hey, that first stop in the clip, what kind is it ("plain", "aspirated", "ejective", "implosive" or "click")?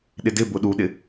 implosive